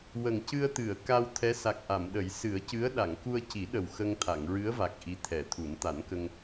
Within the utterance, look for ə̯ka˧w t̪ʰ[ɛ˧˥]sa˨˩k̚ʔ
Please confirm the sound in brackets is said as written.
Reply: yes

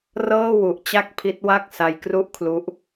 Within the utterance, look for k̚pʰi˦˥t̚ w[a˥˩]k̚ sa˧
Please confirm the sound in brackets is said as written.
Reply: yes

